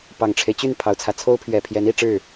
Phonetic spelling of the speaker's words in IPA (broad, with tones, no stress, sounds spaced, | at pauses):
p ɑ˨˩ ŋ ʈ͡ʂʰ e˦ ɪ̯ t͡ɕ y˥˩ n pʰ ɑ˨˩ ʊ̯ t͡sʰ ä˦ t͡sʰ o˥ ʊ̯ pʰ ɥ ɛ˨˩ pʰ j ɛ˧˥ n i˥˧ ʈ͡ʂ ɻ̩˥˩